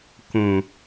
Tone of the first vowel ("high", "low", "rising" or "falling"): low